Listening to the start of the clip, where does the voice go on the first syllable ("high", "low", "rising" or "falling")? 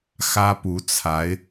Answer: high